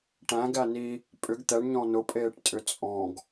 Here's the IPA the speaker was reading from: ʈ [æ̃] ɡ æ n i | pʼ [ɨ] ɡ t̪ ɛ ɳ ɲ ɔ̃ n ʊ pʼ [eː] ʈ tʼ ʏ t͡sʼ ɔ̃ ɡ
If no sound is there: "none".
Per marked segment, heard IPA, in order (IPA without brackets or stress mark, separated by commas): æ̃, ʏ, eː